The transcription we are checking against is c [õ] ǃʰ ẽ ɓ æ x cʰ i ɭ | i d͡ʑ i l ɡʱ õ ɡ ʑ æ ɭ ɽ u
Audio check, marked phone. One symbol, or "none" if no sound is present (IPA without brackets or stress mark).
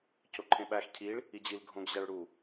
o